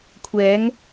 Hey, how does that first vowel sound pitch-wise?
rising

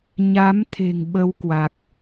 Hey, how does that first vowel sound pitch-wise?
rising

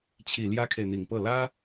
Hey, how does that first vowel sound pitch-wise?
low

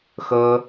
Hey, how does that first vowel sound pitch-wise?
high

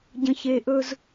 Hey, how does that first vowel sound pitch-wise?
low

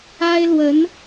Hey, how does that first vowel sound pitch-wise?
high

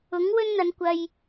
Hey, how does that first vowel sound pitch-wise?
rising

